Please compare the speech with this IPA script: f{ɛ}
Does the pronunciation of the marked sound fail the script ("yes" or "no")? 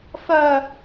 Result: yes